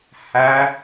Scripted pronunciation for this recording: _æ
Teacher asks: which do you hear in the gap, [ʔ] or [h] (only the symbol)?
h